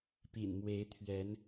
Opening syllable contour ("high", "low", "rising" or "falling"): low